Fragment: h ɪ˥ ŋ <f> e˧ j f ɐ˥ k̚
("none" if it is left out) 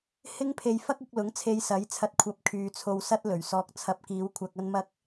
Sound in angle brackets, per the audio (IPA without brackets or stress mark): pʰ